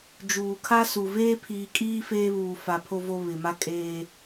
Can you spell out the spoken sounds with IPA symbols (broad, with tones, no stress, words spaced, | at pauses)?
d͡ʒuː˨kʰa˦su˨ veː˦pʰiː˨kʼiː˦ feː˦βuː˨fa˨ pʰo˨vo˨ βɪ˨ma˦kʼeː˦